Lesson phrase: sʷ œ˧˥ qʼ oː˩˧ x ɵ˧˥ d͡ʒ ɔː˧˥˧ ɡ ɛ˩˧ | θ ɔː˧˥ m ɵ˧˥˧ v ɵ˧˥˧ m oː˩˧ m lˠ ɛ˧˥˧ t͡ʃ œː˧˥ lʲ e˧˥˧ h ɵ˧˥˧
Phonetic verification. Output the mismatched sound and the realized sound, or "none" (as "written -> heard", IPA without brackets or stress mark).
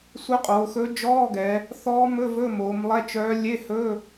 none